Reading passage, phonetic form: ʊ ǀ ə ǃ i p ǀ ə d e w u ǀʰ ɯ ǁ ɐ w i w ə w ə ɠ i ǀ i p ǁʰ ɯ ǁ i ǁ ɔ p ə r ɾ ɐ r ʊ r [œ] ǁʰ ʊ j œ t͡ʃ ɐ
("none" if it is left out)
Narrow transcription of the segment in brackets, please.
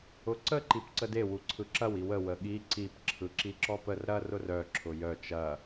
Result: œ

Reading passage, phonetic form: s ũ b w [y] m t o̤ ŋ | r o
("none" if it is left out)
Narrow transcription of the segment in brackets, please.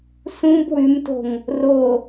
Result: y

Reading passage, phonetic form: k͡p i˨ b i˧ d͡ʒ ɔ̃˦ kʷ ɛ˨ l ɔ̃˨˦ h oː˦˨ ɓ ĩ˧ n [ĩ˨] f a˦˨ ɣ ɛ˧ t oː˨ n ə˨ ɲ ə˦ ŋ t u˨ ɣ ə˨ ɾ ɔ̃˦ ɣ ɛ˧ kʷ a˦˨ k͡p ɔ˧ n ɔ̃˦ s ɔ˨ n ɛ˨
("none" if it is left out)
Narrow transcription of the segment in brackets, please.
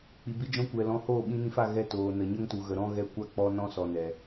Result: ĩ˧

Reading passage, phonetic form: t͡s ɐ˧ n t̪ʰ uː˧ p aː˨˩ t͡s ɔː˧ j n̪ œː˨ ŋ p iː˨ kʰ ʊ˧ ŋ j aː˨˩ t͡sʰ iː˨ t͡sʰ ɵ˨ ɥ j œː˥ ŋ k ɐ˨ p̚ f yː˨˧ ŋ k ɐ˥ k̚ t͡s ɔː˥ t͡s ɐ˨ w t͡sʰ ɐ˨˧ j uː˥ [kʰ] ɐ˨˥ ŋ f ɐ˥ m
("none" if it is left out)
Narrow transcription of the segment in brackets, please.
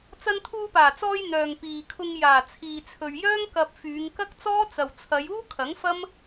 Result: kʰ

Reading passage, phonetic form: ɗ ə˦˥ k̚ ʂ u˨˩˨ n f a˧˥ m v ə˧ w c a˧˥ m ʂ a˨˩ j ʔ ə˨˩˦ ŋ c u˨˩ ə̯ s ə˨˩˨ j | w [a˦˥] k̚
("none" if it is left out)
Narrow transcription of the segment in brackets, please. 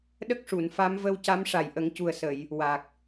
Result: a˨˩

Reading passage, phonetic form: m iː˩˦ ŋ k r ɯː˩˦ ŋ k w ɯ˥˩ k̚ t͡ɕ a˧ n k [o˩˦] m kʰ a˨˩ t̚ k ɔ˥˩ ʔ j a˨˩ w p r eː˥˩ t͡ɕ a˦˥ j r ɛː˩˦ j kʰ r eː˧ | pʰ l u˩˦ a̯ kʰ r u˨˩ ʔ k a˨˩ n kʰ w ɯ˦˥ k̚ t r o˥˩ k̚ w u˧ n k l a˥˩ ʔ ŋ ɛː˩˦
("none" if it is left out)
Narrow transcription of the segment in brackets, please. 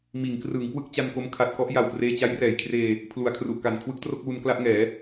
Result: o˦˥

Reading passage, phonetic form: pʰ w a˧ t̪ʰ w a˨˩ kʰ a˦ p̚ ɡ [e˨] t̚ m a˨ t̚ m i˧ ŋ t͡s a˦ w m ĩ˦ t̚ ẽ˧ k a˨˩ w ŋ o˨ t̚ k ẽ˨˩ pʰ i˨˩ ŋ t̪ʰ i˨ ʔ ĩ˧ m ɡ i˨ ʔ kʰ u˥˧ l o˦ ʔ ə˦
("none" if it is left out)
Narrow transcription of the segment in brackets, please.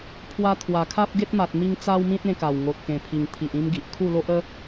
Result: e˦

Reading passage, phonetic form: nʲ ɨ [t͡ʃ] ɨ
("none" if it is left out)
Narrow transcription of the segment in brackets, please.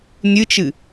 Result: t͡ʃ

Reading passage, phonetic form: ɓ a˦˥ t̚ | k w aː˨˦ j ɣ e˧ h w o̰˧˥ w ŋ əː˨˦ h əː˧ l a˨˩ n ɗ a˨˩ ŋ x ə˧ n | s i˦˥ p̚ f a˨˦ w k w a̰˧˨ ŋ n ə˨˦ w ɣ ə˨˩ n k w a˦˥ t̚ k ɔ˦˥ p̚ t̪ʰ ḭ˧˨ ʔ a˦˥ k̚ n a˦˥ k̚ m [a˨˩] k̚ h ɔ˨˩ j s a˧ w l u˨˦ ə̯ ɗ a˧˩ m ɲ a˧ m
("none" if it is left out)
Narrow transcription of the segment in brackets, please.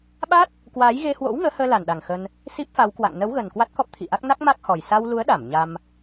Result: a˦˥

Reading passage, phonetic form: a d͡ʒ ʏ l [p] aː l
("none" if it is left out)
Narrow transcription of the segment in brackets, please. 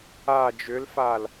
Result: f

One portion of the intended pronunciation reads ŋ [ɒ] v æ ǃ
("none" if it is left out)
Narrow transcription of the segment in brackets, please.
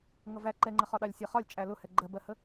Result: ʌ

